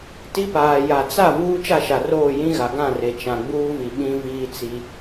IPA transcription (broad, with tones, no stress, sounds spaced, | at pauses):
t i˦ p aː˨ j a˨ t͡s a˦˨ v uː˦ t͡ʃ a˦˨ ʃ a˨ r oː˦˨ j ĩ˦ ɣ a˨ ɡ ã˦˨ r e˨ t͡ʃ ã˨ ɡ͡b uː˦ v i˨ ɓ ĩ˦ v iː˦ t͡s i˦